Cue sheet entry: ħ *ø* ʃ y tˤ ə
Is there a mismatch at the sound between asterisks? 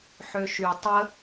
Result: no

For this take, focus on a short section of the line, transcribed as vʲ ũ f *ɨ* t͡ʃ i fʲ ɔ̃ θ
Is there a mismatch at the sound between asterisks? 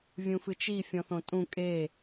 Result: no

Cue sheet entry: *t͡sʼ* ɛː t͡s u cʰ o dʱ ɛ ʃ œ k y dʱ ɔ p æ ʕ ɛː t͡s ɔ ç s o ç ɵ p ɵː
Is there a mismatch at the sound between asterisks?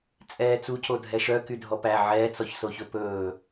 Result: no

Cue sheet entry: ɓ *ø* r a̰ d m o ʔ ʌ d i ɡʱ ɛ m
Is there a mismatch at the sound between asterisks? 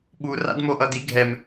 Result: yes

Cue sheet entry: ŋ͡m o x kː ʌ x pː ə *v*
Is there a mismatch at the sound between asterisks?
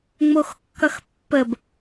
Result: yes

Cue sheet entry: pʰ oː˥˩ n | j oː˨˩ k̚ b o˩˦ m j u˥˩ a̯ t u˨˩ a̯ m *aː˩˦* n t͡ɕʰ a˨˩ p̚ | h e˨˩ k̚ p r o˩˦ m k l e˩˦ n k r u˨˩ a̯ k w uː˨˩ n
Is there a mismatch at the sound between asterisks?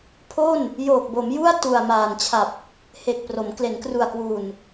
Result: yes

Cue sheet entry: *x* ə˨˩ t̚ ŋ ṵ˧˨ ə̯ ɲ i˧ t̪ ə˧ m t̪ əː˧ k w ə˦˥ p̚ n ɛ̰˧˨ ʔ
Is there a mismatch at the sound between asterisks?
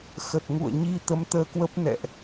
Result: no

